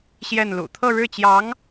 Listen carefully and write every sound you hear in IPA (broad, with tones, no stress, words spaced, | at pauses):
ɕjɛ˥˩nlṵ˨˩ t̪ʰɤ˥˧ɻɻ̩˥˩t͡ɕjɑ˧˥ŋ